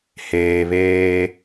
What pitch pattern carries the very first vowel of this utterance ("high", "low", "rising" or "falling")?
low